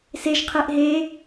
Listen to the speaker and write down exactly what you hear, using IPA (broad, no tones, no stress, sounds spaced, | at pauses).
s e ʒ qʰ e ʔ ɦ e